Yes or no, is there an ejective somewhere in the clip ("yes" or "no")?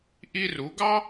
no